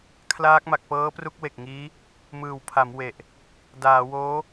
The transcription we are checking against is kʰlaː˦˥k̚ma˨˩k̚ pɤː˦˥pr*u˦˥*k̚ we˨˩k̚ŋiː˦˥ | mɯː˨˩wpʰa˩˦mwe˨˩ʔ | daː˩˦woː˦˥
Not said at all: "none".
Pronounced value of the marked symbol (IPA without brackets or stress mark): u˦˥